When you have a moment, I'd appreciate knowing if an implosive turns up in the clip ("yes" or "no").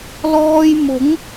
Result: no